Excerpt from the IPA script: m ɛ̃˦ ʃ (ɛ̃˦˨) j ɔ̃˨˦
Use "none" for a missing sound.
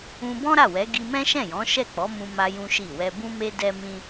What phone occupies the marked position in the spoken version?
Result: ɛ̃˦˨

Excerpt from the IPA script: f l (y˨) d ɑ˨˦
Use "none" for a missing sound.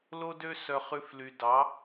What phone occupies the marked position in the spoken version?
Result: y˨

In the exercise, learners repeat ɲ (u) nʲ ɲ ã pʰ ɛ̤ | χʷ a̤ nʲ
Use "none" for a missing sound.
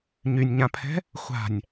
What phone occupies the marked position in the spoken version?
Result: y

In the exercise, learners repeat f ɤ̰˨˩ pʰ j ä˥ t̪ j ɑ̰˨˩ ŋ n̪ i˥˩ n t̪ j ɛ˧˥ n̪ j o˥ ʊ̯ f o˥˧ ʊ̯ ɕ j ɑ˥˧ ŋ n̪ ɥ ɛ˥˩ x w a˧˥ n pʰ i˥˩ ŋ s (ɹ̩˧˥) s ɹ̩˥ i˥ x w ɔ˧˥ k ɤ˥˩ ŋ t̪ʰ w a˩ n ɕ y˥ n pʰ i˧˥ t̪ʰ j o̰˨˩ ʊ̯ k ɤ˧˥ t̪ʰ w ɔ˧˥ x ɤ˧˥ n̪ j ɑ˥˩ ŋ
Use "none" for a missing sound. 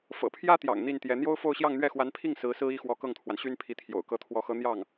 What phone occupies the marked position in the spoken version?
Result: ɹ̩˧˥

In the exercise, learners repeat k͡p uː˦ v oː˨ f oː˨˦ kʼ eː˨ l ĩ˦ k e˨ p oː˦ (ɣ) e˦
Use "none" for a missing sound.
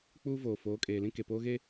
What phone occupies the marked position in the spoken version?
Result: ɣ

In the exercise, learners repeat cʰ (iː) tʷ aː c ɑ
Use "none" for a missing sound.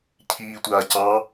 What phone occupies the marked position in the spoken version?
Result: iː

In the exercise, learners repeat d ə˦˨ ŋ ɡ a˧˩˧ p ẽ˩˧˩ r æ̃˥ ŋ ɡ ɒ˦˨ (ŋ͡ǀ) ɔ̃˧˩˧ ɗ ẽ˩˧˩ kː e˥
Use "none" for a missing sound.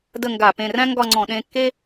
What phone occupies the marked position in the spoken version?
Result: ŋ͡ǀ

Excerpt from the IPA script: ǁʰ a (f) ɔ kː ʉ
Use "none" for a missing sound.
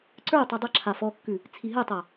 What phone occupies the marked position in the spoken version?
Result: f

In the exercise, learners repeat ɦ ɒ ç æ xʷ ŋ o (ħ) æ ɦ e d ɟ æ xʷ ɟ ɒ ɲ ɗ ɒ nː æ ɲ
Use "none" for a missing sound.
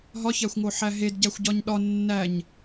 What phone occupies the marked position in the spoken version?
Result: ħ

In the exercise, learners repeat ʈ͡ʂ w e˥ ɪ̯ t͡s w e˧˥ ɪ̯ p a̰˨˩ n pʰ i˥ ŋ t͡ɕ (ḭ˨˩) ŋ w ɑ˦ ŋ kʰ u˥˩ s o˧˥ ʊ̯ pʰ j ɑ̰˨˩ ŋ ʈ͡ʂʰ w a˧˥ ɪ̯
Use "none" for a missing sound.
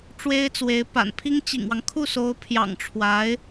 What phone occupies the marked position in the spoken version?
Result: ḭ˨˩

